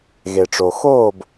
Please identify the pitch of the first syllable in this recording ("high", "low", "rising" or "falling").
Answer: low